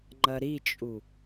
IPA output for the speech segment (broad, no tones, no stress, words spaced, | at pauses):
ŋ͡ǃɐɾit͡ʃʼu